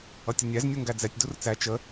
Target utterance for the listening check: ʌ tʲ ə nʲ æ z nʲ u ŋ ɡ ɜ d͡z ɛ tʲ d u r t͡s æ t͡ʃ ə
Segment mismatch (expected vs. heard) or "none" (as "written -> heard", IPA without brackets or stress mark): ɜ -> æ